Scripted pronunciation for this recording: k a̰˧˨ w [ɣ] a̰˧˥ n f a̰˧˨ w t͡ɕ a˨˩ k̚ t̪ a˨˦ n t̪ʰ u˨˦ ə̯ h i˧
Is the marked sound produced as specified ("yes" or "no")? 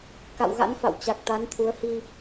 yes